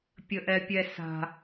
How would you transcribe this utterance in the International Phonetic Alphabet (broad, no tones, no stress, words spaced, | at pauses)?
pʲəʔɛpʲɛsa̤